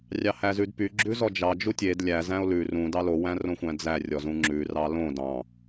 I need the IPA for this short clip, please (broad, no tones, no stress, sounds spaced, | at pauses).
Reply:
rʲ ɑ h æ z ʉ d p y ɡ͡ǁ ʉ z ɔ d͡ʒ ɑ d͡ʒ u tʲ e d lʲ æ z æ̃ o̯ l ʉ r ũ d ɑ l o w æ̃ r õ xʷ æ̃ d͡z æ rʲ ɔ z ũ ŋ͡ǁ ʉ r ɑ l õ d ɑ̃